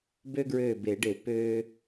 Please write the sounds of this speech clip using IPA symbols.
b ø˦ ɡ ɹ øː˧˩ b e˨˩˦ ɖ e˨˩˦ p øː˦

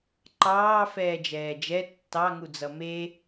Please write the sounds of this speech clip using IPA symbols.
ǃ ɑː f ɛː d͡ʒ ɛː d͡ʒ ɛ tː ɑ ŋ u d͡z ʌ m e

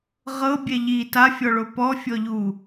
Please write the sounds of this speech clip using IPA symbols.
ʁ ɤ bʲ ɛ ʎ i t a fʲ ɔ ɭ o p ɔ fʲ ɔ ʎ u

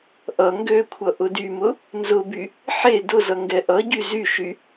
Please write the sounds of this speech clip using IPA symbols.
ʔ ʌ ŋ ɡ ø kʷʰ ʌ ʔ ʊ d y m ʊ | n z ʊ b y | ħ e d ʊ z ʌ ŋ ɡ ɛ ʔ ʌ ɟ y z y ʃ y

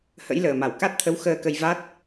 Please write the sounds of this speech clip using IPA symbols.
h ə̰˧˥ j l əː˨˩ m a˧˩ w k a˦˥ t̚ t̪ʰ ə˨˦ w x əː˧ k ə˧ j v a˦˥ t̚

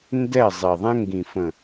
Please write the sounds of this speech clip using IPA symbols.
n d ɛ˦˨ zˤ i˨ ðˤ ɛ̃˦ ŋ ɡ ĩ˨ f ə̃˨

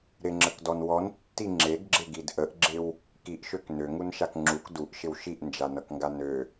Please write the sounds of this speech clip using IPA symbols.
ɾ ɪ ŋ͡ǁ ə k d ɔ n w ɔ n tː i ŋ͡ǁ e ɡ ɡ͡ǁ ɪ ɡ i d ʔ ə ʔ ɡ͡ǁ ɪ w | k i ʔ ʃ ø k n ø ŋ u n ʃ a k ŋ͡ǁ u k d u ʔ ʃ ɪ w ʃ i ʔ n d͡ʒ a n ʌ k ŋ ɡ a n ø

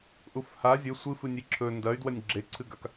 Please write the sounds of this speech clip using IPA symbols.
ʔ u f h a zʲ ɵ sʷ ɨ f ɨ nʲ i ǁʰ ɵ n d ɐ y̯ d w ɐ nʲ ɡ͡ǁ e ǀʰ ɨ ɡ a k

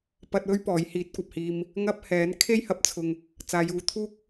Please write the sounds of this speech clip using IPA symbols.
p ɐ˧ t̚ w ɵ˥ ɥ p ɔː˨˥ j h iː˨˥ t̚ kʷ ɐ˨ p̚ h iː˧ m | ŋ ɐ˥ p̚ h ɛː˨˥ n kʰ e˥ j h ɐ˨˥ p̚ t͡sʰ ʊ˨ ŋ | t͡s aː˨˧ j uː˨˧ t̪ʰ uː˥ k̚

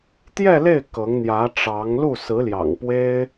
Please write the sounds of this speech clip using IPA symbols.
t̪ j ɛ˥˧ l e˥˩ ɪ̯ k ɤ˧˥ ŋ n̪ j ä˧˥ ʈ͡ʂ ɑ˧˥ ŋ l u˥˩ s ɹ̩˧˥ l j ɑ̰˨˩ ŋ p w e˥ ɪ̯

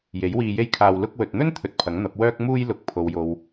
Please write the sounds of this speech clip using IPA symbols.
j e˨˥ j w iː˧ j e˥ j kʰ aː˧ w l ʊ˧ k̚ w ɵ˨ t̚ n̪ ɵ˥ n t̪ʰ ɵ˧ t̚ pʰ ɐ˨˥ ŋ n̪ ɐ˨˥ p̚ w œː˥ k̚ m uː˥ j l ʊ˨ k̚ pʰ o˨ w j o˨ w

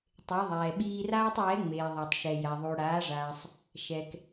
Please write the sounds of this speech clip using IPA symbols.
tˤ e˩˧ ðˤ ɛː˩ ɓ iː˧ r aː˥ tˤ j ɛ˧˥ ŋ͡m eː˩ ðˤ a˩ tˤ ʃ ɛ˩ j a˩ ðˤ u˩ ɽ aː˩˧ ʐ aː˩ sˤ | ʃ ɛ˩ k

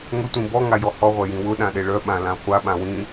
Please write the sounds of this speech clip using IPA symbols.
ŋ ʊ tʷ ĩ b ɔ ŋ a j ɔ h ɔ ʁʷ ɛ j ĩ w ʊ ɗ ã ɗ e ɭ œ ɓ ã l ã χʷ a ɓ ã w ĩ

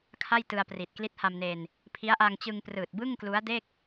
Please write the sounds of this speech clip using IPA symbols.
kʰ a˥˩ j t ɯ˧ a̯ p r i˨˩ t̚ k l i˦˥ t̚ h a˧ m n eː˧ n | pʰ i˦˥ a̯ ʔ a˧ ŋ t͡ɕ ɯ˧ ŋ p r ɯː˨˩ t̚ b ɯ˥˩ ŋ k l u˦˥ a̯ d e˥˩ k̚

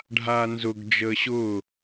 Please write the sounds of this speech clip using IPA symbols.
ɖʱ aː n z ʊ ɡ d͡ʒ əː ɕ ʊː

